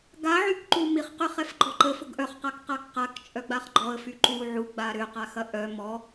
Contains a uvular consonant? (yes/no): yes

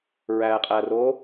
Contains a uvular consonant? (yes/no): yes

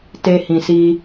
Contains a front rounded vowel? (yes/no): no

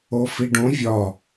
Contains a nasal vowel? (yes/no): yes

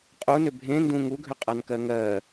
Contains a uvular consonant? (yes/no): yes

